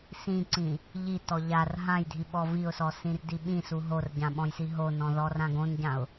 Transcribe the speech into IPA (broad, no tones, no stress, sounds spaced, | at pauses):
s ĩ ǀ ĩ | ʎ i t ɔ ʎ a r ɦ ã j dʱ i ɓ ɔ v i ʊ̯ s ɔ s ĩ r d i ɓ ĩ s u ɦ o r ɟ ã ɓ ɔ̃ j s i ɦ o n ɔ̃ ð ɔ r ã ɡ õ n ɟ ã ʊ̯